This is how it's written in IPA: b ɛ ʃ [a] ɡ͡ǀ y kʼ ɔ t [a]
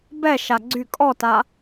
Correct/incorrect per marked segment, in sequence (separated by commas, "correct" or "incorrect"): correct, correct